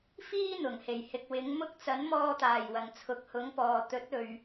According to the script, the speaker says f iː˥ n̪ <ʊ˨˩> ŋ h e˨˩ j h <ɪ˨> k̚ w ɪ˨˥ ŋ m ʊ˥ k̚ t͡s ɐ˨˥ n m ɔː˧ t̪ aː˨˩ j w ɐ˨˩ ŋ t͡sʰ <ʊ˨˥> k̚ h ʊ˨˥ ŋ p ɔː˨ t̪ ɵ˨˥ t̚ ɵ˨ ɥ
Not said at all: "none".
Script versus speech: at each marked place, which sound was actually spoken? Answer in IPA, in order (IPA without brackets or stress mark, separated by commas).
ʊ˨˩, ɪ˨, ʊ˨˥